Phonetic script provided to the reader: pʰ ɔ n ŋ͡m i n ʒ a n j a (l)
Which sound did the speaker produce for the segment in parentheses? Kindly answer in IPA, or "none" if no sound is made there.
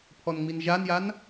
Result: n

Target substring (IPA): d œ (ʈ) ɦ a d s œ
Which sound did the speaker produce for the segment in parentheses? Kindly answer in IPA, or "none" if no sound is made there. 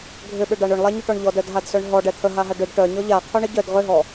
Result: d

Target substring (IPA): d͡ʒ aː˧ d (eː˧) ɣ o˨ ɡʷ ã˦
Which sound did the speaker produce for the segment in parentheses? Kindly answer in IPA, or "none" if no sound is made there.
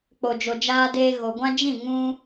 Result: eː˧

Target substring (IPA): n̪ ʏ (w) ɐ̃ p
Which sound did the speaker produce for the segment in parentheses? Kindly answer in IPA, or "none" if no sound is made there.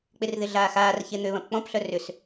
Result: β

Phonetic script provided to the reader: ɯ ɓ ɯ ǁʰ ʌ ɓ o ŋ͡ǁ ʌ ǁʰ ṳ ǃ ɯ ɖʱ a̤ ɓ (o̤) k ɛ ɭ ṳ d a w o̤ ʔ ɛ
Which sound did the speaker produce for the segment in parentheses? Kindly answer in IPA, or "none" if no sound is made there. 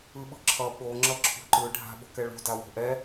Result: o̤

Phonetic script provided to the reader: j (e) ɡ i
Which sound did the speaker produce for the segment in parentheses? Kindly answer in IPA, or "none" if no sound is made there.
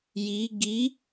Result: i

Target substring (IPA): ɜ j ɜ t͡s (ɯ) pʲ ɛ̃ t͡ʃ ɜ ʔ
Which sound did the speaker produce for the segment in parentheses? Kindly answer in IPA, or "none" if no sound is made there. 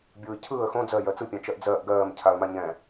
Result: ɯ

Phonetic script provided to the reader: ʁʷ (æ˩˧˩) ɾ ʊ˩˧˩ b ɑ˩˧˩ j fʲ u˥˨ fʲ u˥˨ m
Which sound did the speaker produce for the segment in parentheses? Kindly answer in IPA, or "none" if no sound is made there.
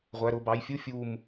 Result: æ˩˧˩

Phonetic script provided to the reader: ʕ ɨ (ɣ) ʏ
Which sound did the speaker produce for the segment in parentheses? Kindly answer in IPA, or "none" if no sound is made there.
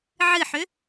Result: ħ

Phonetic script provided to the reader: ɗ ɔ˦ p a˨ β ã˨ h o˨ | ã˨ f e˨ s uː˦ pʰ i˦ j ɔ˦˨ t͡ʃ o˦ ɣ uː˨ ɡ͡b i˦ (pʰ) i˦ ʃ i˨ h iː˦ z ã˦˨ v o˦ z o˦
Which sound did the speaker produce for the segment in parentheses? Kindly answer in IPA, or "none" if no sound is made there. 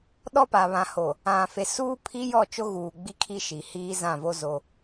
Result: kʰ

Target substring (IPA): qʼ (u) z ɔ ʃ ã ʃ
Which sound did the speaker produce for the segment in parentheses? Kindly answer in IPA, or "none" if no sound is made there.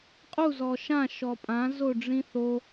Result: u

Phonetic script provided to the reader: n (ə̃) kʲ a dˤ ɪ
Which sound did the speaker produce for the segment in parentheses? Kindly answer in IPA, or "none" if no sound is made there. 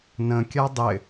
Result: ə̃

